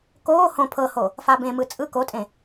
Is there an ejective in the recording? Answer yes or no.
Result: yes